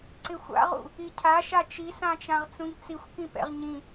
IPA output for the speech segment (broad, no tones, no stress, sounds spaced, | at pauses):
ǀ ɪ xʷ a̰ ʁ ṵ | i cʰ a ʃ a t͡ʃ i s ã t͡ʃ ã ʁ t͡s ũ ʎ t͡s i xʷ k ĩ p ɛ̰ ʁ ɲ ĩ